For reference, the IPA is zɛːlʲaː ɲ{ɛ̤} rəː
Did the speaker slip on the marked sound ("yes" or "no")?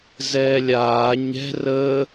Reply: no